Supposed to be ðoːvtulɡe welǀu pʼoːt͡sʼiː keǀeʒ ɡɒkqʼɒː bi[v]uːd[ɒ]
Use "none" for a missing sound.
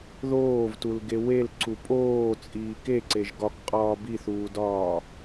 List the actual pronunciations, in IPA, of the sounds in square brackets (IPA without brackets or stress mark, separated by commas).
θ, ɒː